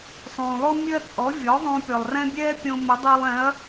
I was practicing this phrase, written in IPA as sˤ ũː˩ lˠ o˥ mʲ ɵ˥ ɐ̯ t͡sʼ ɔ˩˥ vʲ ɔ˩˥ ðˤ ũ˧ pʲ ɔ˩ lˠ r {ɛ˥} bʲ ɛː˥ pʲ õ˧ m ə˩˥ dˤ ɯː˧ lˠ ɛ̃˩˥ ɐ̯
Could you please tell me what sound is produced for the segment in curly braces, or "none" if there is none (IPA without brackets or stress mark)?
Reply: ɛ̃˥